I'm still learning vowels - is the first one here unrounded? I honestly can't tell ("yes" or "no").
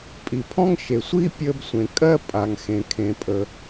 yes